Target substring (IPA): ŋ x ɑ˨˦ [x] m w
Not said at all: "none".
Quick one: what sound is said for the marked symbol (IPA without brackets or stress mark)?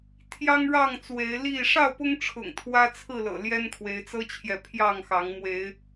ŋ